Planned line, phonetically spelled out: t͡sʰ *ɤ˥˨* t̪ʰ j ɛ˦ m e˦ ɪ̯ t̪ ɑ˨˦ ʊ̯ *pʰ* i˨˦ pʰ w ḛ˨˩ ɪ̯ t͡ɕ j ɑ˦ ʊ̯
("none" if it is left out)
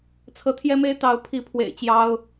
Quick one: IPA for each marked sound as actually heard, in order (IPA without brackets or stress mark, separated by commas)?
ɤ˨˦, pʰ